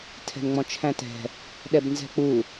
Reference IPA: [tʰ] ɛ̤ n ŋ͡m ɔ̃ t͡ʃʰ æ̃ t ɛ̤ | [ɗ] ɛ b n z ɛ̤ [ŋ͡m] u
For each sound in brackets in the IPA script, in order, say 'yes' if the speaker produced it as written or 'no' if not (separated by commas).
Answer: yes, yes, no